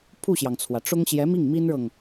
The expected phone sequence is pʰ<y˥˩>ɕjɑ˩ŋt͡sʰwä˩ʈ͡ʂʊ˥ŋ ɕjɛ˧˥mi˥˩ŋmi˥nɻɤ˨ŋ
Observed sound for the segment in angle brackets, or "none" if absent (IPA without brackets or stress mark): u˥˩